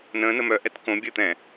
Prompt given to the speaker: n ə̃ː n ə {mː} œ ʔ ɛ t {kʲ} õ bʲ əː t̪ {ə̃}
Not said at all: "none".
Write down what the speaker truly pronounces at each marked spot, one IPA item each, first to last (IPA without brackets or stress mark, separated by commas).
m, k, ɛ̃